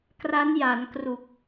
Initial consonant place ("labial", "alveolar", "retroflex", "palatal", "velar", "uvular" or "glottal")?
velar